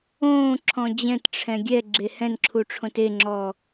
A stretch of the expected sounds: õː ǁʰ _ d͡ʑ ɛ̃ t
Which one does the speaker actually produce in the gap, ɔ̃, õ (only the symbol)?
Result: ɔ̃